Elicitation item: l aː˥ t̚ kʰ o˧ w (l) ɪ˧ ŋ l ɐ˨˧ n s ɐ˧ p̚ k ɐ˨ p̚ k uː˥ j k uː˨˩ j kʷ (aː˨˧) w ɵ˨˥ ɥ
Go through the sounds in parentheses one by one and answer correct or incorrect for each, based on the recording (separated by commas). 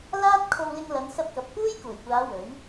correct, correct